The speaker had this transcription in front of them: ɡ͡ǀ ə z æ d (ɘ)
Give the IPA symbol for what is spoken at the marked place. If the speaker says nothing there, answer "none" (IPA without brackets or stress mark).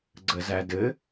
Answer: ɘ